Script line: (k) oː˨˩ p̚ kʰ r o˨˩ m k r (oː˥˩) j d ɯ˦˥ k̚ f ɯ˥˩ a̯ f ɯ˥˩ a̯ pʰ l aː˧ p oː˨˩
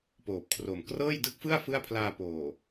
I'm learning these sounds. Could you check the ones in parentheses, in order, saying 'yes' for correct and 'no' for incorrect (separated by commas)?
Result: no, no